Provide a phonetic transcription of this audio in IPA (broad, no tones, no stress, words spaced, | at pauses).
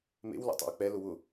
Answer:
mḛw lṵtˤa̰wk͡pɛ lʊwʊ